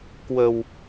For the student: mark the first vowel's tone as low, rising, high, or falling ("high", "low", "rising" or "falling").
low